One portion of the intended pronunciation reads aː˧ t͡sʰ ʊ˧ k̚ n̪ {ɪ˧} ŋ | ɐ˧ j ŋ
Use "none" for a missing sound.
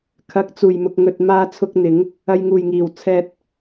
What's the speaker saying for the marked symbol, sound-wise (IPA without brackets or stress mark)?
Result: ɪ˨˥